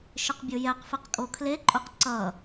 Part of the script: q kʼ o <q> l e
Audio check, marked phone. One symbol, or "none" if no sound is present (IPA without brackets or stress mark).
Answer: kʰ